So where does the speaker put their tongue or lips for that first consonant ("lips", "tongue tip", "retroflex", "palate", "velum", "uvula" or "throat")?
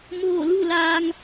lips